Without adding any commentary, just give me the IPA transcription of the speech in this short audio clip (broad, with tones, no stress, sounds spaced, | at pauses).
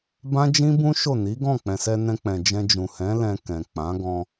b ã˦ d͡ʒ ĩ˦ b ũ˦ ʃ o˦˨ n i˨˦ ɡ ɔ̃˦˨ k͡p ɛ̃˨ s ɛ˧ n ɛ̃˧ k͡p ɛ̃˨ d͡ʒ ɛ̃˧ d͡ʒ ũ˨ h ɛ̃˨˦ l ɛ̃˧ k ɛ̃˨ k͡p ã˨˦ ɡ ɔ̃˧